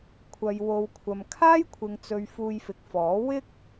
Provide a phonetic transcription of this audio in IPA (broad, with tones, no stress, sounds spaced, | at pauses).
kʷʰ ɐ˨ j w o˨ w kʷʰ ɐ˨ m kʰ aː˥ j kʷʰ ɪ˨ ŋ t͡s ɵ˨ ɥ f uː˧ j f ɪ˨ k̚ f ɔː˨˥ w ɪ˥ k̚